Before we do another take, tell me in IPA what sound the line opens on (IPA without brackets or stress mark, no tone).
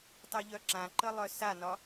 tˤ